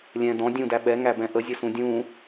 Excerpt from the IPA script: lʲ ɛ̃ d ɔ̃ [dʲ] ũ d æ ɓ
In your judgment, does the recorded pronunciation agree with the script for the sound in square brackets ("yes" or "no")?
yes